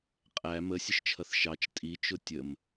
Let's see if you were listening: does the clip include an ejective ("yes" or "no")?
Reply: yes